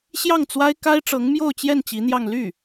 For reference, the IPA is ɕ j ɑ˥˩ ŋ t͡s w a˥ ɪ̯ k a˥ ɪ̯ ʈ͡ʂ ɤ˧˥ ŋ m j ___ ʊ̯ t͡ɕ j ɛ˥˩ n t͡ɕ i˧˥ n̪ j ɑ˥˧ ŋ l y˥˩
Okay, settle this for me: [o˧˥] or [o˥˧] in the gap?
o˥˧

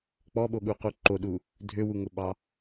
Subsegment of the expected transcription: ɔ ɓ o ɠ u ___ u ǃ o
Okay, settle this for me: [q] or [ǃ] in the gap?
q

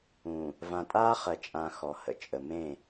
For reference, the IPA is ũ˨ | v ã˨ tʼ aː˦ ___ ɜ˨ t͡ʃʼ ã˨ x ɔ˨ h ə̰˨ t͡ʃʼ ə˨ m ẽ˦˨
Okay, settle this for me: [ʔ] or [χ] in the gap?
χ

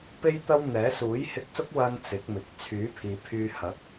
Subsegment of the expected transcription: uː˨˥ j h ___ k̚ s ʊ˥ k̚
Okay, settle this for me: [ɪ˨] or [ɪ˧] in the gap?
ɪ˧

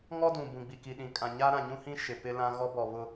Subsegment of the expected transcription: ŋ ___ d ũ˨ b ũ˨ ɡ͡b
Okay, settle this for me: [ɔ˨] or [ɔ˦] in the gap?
ɔ˦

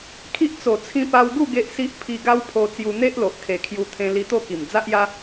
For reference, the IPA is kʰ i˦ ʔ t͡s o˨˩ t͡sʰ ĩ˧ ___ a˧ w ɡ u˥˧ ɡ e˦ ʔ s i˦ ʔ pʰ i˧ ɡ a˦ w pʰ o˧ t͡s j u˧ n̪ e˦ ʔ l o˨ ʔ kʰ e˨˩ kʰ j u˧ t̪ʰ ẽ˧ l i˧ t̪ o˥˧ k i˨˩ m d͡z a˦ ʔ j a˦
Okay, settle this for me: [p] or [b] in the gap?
p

